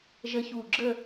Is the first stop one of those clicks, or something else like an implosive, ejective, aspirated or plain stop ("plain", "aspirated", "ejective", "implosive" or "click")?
click